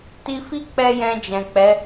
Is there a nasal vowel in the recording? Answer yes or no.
yes